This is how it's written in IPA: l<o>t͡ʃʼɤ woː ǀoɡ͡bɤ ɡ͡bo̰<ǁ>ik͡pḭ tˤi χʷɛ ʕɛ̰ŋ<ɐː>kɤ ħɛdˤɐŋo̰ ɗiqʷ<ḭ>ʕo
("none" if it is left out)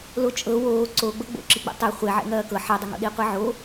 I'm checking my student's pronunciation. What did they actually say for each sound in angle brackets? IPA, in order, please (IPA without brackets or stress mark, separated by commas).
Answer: o, ǁ, ɐː, i